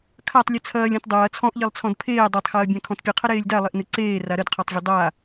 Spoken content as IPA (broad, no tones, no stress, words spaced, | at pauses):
kʰatˤ lʲɨt͡sʰɐːlʲ ɔ̃tdˤɐː t͡sʰɔ̃ʔʎelˠt͡sʰɔ̃d pʰeː dˤatˤxɐːbʲã kʰɔ̃tpʲɨqʰə ɾeːlʲdalˠeʔnɨ ǀeː raɾədqʰɔtˤvʲɐ dˤa